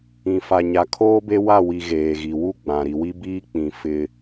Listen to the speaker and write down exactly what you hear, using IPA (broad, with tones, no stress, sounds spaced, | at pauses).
ĩ˨ f a˨ ɲ a˨ kʰ oː˦ b e˦ w a˦˨ w i˨ ɣ eː˨ ɣ i˨ w u˦ ɡ͡b ã˨ ɾ i˨ w i˦ b iː˦ k͡p ĩ˨ f ɪ˦